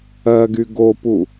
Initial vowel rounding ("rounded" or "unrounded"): unrounded